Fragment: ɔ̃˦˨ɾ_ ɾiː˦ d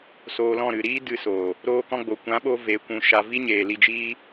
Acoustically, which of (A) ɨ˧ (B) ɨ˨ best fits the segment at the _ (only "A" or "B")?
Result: B